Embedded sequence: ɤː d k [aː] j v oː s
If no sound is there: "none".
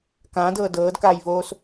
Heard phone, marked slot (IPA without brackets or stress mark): aː